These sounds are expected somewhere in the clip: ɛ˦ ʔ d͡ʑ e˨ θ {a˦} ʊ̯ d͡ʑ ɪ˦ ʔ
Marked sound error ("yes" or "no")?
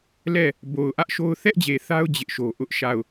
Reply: no